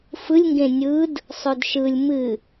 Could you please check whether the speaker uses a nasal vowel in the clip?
yes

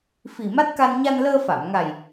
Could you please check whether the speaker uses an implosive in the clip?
no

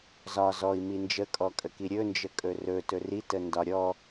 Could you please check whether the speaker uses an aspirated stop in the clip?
no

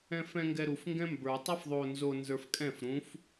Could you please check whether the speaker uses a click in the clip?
no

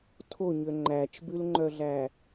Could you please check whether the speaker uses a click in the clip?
yes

